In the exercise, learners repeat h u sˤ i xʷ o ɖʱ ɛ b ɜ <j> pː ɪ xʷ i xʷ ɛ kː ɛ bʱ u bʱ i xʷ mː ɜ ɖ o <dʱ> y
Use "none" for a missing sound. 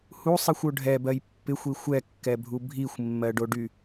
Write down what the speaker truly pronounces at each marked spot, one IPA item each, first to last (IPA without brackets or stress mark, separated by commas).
j, ɖ